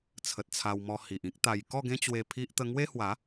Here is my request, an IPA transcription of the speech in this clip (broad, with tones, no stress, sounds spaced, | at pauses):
t͡sʰ ə˨ t̚ t͡sʰ a˧ w m ɔ˧ h i˨ ʔ ĩ˦ k̚ t̪ a˧ j k ɔ˥˧ ɡ ẽ˦ t͡ɕ w e˧ pʰ i˦ ʔ t̪ ə˦ ŋ w e˦ h w a˨˦